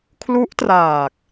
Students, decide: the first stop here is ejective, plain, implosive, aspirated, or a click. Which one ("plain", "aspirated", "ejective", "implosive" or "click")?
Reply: aspirated